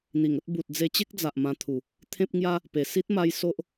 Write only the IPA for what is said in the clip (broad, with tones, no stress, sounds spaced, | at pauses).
n̪ i˨˩ ŋ ə˦ t̚ b u˨ t̚ d͡z e˧ t͡ɕ e˦ k̚ d͡z a˨ ʔ m ã˧ t̪ʰ u˨˩ | t̪ʰ ẽ˦ p̚ ŋ j a˦ | p e˨˩ s i˦ t̚ m a˧ j s o˦ ʔ